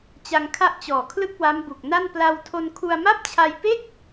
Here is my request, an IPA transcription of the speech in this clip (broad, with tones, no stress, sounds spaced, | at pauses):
t͡ɕ a˧ ŋ kʰ a˦˥ ʔ t͡ɕ ɔː˨˩ kʰ l ɯ˥˩ k̚ w a˦˥ m b u˨˩ k̚ n a˥˩ n p l a˧ w tʰ o˧ n kʰ u˧ a̯ m a˥˩ p̚ t͡ɕʰ a˧ j p e˥˩ k̚